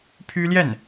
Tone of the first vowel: high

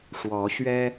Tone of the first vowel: rising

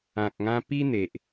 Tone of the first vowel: low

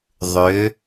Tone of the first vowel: rising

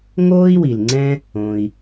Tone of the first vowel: high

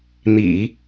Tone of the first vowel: low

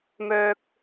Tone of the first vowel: high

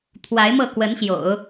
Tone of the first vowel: rising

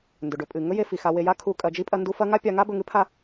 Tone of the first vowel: low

